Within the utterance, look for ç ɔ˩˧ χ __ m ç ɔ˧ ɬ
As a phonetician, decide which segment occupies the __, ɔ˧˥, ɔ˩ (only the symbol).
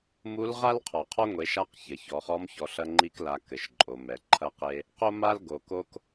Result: ɔ˧˥